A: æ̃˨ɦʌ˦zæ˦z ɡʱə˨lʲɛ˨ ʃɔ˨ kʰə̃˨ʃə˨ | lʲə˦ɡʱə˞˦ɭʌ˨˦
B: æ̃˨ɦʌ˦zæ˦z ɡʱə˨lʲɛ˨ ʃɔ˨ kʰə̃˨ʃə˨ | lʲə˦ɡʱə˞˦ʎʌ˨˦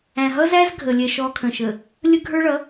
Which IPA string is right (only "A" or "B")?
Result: A